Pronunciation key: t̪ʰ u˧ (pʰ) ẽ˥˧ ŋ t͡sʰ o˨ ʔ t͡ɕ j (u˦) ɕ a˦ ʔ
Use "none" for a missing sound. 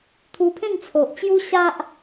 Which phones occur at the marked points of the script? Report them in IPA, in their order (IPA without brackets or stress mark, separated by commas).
pʰ, u˦